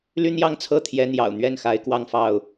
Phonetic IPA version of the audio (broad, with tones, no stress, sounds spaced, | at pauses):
l y˦ n̪ j ɑ˥˨ ŋ t͡sʰ ɤ˥˨ t̪ʰ j ɛ˨˦ n̪ j ɑ̰˨˩ ʊ̯ n̪ ɥ ɛ˥˨ n x a˨˦ ɪ̯ k w ɑ˥˨ ŋ f ɑ˥˨ ʊ̯